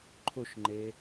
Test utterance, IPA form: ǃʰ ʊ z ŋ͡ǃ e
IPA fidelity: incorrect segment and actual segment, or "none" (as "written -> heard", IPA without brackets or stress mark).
z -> ʃ